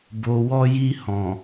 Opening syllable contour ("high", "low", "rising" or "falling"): low